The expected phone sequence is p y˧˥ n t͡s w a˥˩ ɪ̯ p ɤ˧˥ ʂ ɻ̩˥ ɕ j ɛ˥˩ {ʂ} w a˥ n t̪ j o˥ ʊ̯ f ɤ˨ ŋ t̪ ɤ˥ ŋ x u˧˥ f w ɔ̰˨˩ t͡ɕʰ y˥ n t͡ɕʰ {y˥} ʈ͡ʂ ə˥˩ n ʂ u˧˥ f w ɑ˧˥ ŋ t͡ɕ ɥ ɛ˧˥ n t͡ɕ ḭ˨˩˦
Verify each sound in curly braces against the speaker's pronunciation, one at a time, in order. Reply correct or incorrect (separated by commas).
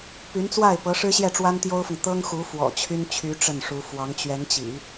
incorrect, incorrect